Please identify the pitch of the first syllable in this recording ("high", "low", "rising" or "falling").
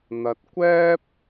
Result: low